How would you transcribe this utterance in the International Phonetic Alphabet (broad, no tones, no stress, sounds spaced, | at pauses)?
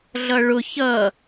ɮ ʌ ɭ ʊ ç ʌ